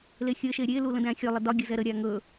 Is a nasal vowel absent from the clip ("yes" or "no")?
no